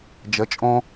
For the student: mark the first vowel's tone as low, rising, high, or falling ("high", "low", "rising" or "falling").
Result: rising